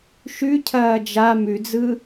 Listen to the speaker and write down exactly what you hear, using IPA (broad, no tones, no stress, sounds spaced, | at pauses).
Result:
ʃ ʉ cʰ ɐː d͡ʒ a m ʉ d͡z ɯ